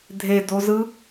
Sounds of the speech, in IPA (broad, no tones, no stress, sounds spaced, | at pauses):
dʱ e d o z ɯ